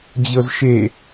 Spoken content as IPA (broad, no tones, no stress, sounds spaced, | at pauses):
d͡ʑ ɤ z ʃ e